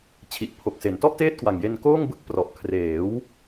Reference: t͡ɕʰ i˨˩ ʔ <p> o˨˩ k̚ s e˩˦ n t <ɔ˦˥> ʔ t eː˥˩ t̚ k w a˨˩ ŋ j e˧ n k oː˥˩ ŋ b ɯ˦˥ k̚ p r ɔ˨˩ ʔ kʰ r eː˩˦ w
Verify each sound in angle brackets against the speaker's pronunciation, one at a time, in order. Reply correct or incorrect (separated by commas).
incorrect, incorrect